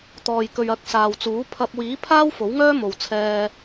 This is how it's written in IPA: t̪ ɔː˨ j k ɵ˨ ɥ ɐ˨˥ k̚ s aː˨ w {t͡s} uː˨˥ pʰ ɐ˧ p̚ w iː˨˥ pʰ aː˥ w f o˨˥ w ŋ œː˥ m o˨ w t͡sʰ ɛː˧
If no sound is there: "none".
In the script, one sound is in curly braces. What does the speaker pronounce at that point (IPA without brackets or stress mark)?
t͡s